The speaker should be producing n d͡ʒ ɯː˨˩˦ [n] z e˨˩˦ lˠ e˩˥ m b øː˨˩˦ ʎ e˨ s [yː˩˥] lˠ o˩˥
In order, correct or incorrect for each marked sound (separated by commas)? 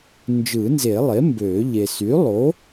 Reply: correct, correct